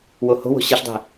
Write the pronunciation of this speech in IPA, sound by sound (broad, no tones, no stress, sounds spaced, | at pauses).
w o h o̤ w o̤ ɕ e ɬ dˤ e̤